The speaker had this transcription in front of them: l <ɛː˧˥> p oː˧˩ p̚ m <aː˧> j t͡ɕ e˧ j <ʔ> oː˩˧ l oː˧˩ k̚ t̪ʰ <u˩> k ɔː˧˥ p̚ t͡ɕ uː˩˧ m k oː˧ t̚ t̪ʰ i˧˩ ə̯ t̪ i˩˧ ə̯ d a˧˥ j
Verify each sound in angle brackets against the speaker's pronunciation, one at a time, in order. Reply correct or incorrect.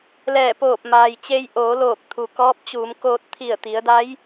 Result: incorrect, incorrect, correct, correct

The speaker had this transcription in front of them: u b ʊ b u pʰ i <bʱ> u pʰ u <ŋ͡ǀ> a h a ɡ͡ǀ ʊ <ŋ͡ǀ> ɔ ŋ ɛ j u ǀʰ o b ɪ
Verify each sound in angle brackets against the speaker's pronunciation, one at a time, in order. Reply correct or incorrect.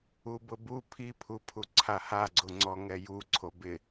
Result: incorrect, incorrect, correct

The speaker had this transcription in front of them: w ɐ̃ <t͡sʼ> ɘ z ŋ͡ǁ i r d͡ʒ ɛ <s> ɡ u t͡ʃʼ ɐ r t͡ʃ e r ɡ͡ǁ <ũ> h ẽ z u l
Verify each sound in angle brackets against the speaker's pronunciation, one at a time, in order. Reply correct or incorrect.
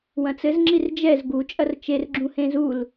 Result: incorrect, incorrect, correct

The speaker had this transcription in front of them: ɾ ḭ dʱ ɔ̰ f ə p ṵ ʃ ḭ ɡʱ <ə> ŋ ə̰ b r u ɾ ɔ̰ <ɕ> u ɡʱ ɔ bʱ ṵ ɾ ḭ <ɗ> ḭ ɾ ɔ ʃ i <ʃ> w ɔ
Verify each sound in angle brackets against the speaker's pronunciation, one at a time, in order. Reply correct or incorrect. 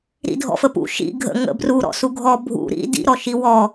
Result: incorrect, incorrect, incorrect, incorrect

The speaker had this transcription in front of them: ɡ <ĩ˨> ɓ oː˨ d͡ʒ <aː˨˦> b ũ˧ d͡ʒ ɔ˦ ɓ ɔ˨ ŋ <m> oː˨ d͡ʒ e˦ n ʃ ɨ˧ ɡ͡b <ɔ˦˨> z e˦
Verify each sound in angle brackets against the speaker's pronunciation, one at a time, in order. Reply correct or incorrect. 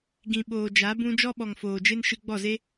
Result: correct, incorrect, incorrect, correct

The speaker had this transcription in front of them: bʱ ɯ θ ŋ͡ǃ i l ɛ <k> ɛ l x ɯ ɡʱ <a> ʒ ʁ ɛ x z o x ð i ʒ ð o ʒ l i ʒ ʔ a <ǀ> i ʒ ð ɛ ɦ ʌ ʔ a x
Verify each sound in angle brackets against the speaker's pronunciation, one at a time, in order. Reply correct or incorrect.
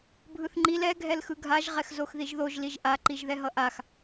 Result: incorrect, correct, incorrect

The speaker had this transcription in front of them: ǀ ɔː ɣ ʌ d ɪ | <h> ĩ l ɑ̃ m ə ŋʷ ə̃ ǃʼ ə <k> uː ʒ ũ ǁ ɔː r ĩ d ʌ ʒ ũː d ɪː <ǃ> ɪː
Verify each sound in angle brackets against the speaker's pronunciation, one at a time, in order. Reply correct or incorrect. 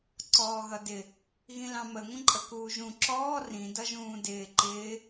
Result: incorrect, correct, correct

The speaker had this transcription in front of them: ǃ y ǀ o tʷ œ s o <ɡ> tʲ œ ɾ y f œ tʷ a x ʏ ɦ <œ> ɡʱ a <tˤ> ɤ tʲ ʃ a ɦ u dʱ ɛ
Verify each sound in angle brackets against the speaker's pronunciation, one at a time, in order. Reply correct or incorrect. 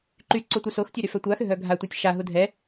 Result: incorrect, correct, incorrect

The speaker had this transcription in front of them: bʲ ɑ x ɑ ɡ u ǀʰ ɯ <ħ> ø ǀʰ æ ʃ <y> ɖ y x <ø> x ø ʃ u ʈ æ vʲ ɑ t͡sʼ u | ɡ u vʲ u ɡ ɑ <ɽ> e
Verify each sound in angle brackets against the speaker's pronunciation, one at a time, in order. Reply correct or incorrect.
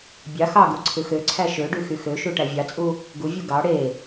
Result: incorrect, incorrect, incorrect, correct

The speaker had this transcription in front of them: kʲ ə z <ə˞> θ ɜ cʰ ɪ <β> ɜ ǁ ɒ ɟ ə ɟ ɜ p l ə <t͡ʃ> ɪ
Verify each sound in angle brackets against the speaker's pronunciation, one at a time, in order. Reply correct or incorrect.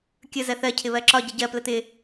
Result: incorrect, correct, incorrect

